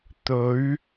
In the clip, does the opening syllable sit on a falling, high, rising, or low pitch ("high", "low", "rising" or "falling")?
rising